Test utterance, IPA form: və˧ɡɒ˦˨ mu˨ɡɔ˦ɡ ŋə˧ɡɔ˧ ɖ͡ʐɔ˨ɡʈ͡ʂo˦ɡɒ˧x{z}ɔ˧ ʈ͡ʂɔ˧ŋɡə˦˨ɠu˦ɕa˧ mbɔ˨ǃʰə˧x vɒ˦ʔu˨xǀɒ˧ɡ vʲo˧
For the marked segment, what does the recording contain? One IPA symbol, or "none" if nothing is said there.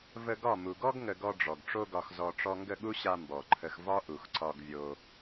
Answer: z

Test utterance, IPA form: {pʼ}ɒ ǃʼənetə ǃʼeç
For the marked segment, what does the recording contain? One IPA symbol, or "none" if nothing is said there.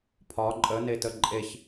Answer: pʰ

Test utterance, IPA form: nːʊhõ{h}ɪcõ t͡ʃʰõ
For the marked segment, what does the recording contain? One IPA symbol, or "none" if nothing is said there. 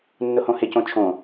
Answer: h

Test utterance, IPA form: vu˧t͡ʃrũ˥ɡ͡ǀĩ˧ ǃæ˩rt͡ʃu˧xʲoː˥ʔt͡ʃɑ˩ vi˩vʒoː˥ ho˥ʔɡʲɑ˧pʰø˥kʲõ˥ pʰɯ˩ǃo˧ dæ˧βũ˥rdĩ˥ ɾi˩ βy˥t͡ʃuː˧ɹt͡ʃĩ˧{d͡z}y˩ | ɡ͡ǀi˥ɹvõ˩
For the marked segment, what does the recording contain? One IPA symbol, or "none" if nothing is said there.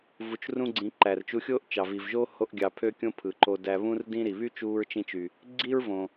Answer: t͡ʃ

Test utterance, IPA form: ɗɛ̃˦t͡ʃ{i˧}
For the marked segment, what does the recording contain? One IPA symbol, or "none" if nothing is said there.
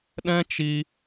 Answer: i˧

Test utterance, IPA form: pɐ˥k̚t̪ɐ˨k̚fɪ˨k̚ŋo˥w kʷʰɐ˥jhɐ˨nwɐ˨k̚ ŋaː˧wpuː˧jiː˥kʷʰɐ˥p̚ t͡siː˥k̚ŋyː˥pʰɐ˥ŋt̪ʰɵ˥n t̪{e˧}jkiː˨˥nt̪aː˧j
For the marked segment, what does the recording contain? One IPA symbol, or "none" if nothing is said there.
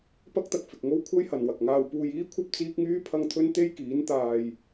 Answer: e˥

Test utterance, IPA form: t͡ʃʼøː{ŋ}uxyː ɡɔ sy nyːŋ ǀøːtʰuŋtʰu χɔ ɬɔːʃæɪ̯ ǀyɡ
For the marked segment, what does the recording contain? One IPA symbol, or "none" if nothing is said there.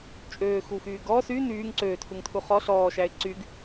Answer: x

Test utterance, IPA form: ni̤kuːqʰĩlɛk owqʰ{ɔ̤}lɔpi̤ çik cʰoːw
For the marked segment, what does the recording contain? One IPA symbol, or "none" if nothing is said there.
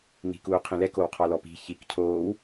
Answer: ɔ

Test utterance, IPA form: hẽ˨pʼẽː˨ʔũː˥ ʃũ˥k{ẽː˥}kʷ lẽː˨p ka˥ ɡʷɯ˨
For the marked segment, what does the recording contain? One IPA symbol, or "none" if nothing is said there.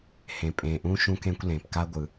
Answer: ẽː˥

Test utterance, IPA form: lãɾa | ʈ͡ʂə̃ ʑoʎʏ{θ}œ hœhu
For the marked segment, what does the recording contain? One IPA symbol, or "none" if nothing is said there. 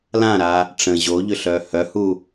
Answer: ɬ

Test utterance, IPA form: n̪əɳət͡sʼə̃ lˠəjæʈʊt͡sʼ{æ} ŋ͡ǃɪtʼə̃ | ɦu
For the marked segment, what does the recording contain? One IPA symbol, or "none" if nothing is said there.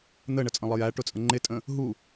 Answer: ə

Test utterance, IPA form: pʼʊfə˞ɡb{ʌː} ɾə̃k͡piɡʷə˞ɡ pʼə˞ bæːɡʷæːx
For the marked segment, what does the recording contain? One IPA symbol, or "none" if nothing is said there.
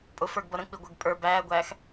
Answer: ʌ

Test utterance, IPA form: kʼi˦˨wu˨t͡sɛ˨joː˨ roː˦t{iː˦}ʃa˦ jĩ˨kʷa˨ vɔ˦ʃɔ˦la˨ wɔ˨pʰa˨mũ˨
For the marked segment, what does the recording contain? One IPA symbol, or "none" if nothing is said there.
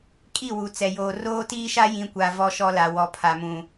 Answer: iː˦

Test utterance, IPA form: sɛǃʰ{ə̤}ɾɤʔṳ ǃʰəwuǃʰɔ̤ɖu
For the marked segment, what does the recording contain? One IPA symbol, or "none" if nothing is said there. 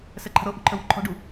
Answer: ə̤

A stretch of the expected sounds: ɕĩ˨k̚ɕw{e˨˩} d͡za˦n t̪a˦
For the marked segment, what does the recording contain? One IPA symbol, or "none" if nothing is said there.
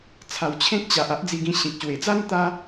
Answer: e˨˩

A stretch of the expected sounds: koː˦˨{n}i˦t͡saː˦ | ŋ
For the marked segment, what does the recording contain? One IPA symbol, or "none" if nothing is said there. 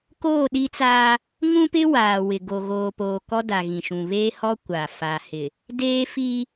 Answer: ɗ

